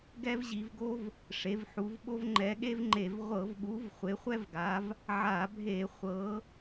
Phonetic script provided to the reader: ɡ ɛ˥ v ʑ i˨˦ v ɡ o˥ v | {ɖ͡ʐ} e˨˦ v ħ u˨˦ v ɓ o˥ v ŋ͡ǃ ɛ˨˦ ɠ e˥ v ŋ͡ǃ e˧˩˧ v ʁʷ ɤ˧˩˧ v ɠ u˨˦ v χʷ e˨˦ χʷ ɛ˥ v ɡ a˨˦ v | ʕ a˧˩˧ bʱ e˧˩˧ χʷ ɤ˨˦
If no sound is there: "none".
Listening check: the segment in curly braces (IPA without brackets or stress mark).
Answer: ʂ